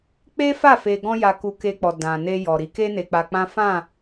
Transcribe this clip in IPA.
k͡p e˦ f a˦˨ f e˧ ɡ ɔ̃˦ j a˧ k u˧ k e˧ k͡p ɔ˨ d ã˨ n e˧ j ɔ˨ ɾ i˨˦ k e˦ n e˧ k͡p a˧ k͡p ã˦ f ã˦˨

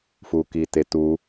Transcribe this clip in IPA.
f u k i t e t u

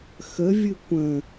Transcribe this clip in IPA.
x ə vʲ ɨ kʷ ə̃

